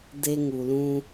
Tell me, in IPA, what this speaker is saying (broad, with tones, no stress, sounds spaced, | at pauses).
d e˦ ŋ u˨ l ũ˦